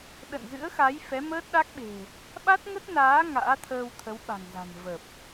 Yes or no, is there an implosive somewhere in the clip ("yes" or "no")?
yes